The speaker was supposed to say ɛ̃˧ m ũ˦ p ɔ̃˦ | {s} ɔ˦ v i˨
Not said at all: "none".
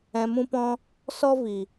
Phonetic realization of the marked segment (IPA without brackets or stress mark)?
s